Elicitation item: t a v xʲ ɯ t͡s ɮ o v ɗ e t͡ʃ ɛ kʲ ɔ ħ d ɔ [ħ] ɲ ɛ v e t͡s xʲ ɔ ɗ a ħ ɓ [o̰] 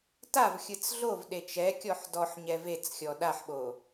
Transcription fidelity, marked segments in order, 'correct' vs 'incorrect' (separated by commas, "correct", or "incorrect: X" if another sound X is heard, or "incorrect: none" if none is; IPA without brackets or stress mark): correct, incorrect: o